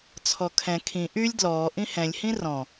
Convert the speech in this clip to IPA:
t͡sʰɔkʰɛ̃ kʰĩ ʔylʲ dlɔː ʔĩhɛ̃lʲhĩ rɔ̃

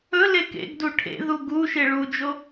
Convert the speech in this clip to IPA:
ɵle kḛɡdu ʈʰḛðu ɡuʃe ɭud͡ʒo

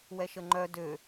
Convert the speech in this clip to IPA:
wɛʃəŋ͡ǃœ dø

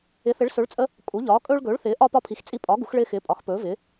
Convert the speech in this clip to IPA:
ɪ˨˥θɪ˨˥ɭsɵ˨˥ɭt͡sʼə˦ | kʼu˨˥ʎɒː˨˥ kʼɵː˦ɭɡɵː˨˥ɭθɪː˨˥ʔɒ˦ pɒ˦pʰi˨˥xt͡sʼi˦ pʼɒ˨˥ ɡu˨˥xɭɪː˦xɪː˨˥ pʼɒ˨˥xpɵː˨˥vɪː˨˥

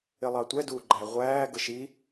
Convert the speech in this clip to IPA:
ɪlˠɑtʷɛ duːɡ͡ǃæʁʷæː ɡəʃi

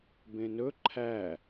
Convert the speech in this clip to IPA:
bẽnɵ ǃʰæ

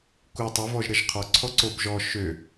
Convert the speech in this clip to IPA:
ku tˤøvɔʒɾəʒ qʰɔǀʰɔǀob ʒɔ ʃø

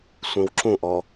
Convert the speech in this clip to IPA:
sʷĩwǁũʔɔ

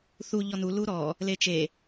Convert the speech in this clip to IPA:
θu ʎɔnu luɾɔ | let͡ʃe

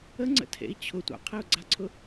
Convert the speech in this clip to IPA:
əŋ͡ǀə̰tʰḛi̯ t͡ɕʰʊ tʷa̰qʰɛu̯ɡ͡ǀaǀʰʊ

